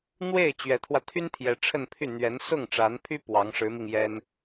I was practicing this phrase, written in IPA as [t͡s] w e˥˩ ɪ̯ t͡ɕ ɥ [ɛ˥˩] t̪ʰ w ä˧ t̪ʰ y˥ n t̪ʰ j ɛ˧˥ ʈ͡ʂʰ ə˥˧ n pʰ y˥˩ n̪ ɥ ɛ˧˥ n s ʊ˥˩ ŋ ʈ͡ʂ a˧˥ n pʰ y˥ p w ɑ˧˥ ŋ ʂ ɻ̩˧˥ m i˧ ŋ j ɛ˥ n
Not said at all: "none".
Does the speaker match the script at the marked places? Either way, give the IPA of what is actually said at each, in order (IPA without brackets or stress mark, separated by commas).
n̪, ɛ˧˥